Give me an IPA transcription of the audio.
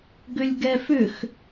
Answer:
ɡ ʏ lʲ ɡ ɛ f ʏ x

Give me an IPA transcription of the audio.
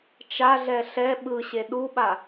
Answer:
t͡ʃ a ɮ ɛ ɬ ɛ ɓ ɯ ɕ e ɗ u ɓ a

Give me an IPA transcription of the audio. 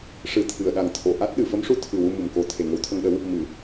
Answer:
ʂ ɨ˨˩˦ t̪ʰ ɨ˨˩˨ ə̯ ɗ a˨˩ ŋ t̪ʰ o˨˩˨ ʔ a˦˥ t̚ ɗ ɨ˨˩˨ f ə˧˥ m ʂ u˧˥ t̪ʰ ɨ˨˩ w u˧ m u˨˩ m k o˧ t̪ʰ e˨˩ ŋ ə˧˥ w t̪ʰ ə˧ ŋ ɗ ə˧˥ w | m ɨ˨˩˨

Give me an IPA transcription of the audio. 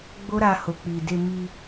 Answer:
ɡ͡b o˦ ɾ a˧ h o˨ k͡p i˨ d e˧ m i˧

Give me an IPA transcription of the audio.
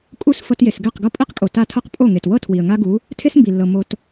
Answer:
kʼ u˦ s f ɤ˧ t j e˨ s ɡ ɛ˦˨ q ɡ ɤ˦ pʼ i˦ q kʼ o˨ t a˦˨ tʰ ɤ˦ q pʼ o˦˨ ŋ e˨ t w ɤ˦ tʰ w i˨ ə̯ ŋ a˦ ɡ u˨˦ | tʰ e˦ s m b i˨ lː ɤ˨ m o˧ t

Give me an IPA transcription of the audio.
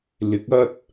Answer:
l ɪ˨˥ k̚ ɐ˥ t̚

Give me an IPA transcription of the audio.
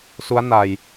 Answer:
s u˦˥ a̯ n a˧ j

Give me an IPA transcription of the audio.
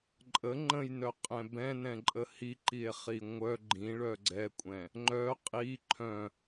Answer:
ǃʼ ə ŋ͡ǃ ə̃ j n œ qʼ ɛ̃ b ɛ̃ n ɛ̃ ǃʼ ə h i ǃ i e̯ χ i ŋʷ œ ɡ͡ǃ ĩ ɭ œ ɡ͡ǀ ɛ kʷʼ ɛ̃ | ŋ͡ǃ œ qʼ i ǃʰ œ̃

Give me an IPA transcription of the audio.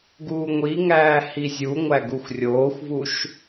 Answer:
ɡ uː ŋʷ i ŋ æː h i zʲ u ŋʷ æ ɡ u xʷ rʲ oː xʷ v u ʃ

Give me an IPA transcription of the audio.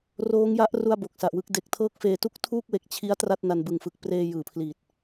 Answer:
r oː˦˥ ŋ j a˦˥ ʔ r u˥˩ a̯ b o˨˩ k̚ s a˨˩ ʔ w ɯ˦˥ k̚ d e˨˩ k̚ tʰ ɤː˥˩ k̚ f eː˧ t u˥˩ k̚ tʰ uː˥˩ k̚ w e˨˩ k̚ t͡ɕʰ i˦˥ a̯ t r a˥˩ t̚ n a˧ n b ɯ˨˩ ŋ f ɯ˨˩ k̚ p r eː˧ j ɯː˨˩ pʰ l iː˨˩ t̚

